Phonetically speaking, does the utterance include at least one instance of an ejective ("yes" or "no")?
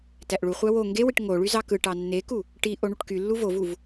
no